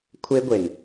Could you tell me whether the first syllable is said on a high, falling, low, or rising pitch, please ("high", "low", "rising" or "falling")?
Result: high